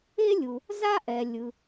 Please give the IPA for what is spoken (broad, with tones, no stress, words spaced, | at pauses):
e˥lʲu˩ | za˥ʔɛ˩lʲɯ˩